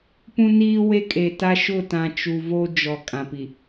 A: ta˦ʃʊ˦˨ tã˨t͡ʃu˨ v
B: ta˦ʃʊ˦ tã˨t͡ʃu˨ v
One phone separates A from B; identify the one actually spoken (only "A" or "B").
A